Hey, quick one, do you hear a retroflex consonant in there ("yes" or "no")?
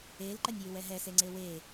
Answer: no